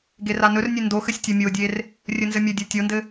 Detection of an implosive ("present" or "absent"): absent